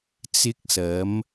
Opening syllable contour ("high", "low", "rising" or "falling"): high